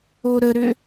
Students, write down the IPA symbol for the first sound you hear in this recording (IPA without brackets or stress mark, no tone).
o